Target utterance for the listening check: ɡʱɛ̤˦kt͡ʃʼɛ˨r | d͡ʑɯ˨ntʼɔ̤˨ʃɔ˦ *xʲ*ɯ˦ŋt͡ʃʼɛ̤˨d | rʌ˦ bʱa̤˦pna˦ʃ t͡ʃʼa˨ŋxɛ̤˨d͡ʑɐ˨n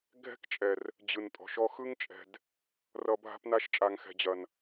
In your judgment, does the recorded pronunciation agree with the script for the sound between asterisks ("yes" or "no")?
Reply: no